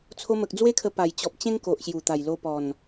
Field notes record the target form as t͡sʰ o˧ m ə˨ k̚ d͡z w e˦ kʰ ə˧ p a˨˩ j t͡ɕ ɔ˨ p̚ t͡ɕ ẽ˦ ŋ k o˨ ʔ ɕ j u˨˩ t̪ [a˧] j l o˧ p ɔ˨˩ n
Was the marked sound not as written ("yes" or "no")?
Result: yes